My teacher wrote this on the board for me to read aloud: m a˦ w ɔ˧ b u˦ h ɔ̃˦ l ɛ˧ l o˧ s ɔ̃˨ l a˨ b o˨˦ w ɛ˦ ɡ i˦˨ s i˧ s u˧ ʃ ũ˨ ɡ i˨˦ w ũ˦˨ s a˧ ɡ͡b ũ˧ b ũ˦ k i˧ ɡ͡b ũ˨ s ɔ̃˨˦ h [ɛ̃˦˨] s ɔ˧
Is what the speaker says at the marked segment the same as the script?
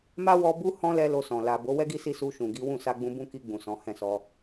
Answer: yes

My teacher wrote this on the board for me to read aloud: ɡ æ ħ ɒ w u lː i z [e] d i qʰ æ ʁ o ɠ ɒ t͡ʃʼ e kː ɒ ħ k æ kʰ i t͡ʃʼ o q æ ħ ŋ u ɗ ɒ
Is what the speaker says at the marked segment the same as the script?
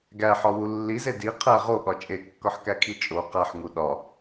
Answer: yes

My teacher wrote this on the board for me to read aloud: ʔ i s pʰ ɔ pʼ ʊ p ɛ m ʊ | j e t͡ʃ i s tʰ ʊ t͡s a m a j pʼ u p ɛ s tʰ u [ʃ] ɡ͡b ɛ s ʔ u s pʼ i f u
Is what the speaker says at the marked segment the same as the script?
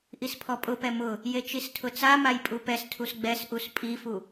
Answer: no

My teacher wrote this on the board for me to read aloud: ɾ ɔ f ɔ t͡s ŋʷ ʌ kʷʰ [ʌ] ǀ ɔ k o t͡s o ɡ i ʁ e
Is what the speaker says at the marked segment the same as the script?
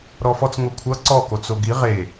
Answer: yes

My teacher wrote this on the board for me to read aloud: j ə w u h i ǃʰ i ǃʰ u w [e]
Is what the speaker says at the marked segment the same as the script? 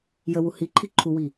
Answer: no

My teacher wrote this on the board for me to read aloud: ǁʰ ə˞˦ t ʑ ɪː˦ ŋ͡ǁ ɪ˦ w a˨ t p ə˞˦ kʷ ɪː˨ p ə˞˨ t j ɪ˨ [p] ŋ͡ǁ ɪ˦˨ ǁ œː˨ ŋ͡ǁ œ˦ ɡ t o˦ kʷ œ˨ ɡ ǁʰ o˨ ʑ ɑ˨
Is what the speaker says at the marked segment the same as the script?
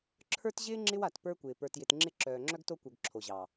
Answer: no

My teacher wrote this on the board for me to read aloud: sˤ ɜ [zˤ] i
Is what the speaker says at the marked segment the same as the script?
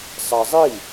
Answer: yes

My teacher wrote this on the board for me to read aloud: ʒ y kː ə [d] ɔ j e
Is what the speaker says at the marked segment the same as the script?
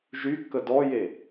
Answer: yes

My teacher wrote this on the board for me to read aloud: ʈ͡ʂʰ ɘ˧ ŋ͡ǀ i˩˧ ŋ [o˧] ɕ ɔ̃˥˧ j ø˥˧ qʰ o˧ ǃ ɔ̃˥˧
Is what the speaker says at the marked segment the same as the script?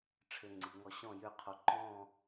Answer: no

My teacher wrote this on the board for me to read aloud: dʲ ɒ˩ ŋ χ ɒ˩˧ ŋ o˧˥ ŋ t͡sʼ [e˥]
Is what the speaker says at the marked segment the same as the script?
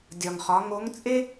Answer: yes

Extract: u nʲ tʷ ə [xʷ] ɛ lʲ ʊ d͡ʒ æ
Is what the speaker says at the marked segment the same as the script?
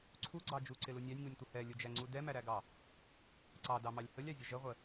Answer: no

